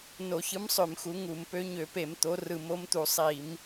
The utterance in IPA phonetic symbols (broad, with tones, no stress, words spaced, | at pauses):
no˧˩˧çɯ˨˥msˤø˧˩˧m xu˨˥ŋu˧˩˧m pø˨˥ɲø˧˩˧pe˧˩˧m t̪o˨˥rɯ˧˩˧m o˨˥mt̪u˧˩˧ sˤi˧˩˧m